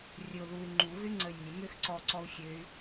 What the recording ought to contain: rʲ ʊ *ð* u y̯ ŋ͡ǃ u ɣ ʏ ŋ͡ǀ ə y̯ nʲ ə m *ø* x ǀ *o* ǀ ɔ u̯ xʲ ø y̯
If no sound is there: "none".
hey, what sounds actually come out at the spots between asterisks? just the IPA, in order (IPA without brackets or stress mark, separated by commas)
ð, ø, ɔ